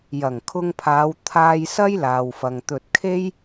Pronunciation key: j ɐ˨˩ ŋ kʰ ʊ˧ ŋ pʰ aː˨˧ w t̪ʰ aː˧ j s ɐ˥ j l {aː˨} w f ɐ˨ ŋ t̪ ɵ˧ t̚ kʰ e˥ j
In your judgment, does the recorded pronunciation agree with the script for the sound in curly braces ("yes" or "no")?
yes